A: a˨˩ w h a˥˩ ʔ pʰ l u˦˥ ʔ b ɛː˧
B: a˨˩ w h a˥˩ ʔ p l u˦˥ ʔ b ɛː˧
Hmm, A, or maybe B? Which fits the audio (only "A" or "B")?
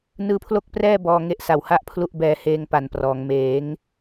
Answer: A